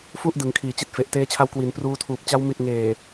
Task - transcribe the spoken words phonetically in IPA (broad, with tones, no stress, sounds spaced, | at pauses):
f u˥˩ ʔ d ɯ˩˦ ŋ kʰ iː˨˩ t͡ɕ i˦˥ t̚ f e˨˩ ʔ t eː˧ t͡ɕʰ a˧ w k w i˩˦ n p r uː˧ tʰ uː˨˩ p̚ t͡ɕ a˧ w m i˨˩ t̚ ŋ eː˨˩